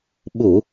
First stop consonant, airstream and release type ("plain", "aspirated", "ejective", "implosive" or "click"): implosive